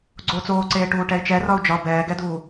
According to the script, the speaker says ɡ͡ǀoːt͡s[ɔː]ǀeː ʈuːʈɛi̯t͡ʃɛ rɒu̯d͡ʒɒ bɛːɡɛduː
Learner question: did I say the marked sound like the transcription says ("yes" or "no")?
no